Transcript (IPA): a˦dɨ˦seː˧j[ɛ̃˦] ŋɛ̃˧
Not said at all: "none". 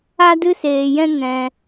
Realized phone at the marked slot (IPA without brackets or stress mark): ɛ̃˦